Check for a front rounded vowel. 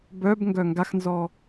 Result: present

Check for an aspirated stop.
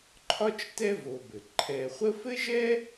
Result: present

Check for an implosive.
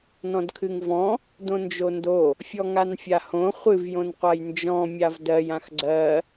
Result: absent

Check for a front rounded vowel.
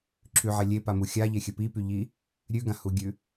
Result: present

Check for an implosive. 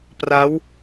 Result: absent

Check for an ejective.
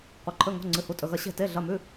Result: present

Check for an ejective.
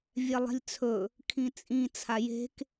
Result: present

